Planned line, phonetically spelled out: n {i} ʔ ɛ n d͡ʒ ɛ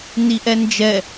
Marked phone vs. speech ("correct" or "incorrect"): correct